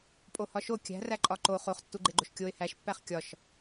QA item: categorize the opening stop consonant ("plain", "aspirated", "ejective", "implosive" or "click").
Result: ejective